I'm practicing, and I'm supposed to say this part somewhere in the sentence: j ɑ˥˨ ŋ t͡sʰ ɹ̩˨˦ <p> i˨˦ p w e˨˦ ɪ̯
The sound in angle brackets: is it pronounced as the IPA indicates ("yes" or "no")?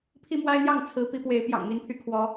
yes